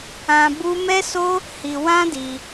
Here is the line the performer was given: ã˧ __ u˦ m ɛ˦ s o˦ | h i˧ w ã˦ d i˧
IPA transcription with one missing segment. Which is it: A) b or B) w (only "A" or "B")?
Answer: A